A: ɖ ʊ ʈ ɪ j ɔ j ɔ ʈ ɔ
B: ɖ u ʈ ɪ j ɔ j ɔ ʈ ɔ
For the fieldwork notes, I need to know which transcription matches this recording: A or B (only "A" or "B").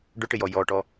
A